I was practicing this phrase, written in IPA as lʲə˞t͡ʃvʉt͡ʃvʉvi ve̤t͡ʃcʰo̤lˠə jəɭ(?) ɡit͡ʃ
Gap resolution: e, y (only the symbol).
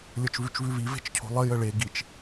e